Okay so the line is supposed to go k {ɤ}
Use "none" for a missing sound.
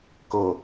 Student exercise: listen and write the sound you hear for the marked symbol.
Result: ɤ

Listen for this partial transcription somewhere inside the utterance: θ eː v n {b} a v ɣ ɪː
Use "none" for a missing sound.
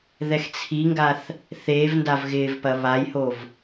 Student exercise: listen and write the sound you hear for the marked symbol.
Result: d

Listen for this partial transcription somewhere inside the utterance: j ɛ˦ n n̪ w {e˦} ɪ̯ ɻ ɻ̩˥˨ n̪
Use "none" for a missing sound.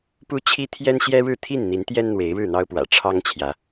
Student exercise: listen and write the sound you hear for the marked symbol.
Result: e˨˦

